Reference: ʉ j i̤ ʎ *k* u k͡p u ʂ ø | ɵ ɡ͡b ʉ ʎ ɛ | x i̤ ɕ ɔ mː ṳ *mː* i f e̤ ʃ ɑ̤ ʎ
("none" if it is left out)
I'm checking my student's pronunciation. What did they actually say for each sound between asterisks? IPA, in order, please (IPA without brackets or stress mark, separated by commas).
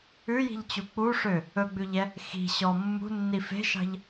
t͡ɕ, nː